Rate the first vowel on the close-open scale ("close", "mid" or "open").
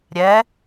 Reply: mid